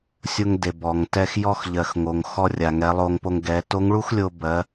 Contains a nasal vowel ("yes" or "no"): no